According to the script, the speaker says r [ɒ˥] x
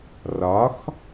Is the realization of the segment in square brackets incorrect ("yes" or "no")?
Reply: yes